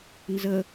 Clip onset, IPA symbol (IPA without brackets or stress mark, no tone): n